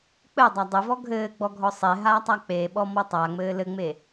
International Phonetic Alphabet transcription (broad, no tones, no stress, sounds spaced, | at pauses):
k͡p ɘ dˤ a dˤ ɘ v ɔ ɡʱ ɘː ɡ͡b ɔ ɡʱ ɔ sˤ e ɦ aː tˤ a k͡p e ɓ ɔ m ɔ tˤ a ŋ͡m ɘː l ɘ ŋ͡m e